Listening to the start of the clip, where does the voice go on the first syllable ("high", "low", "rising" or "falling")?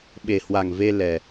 low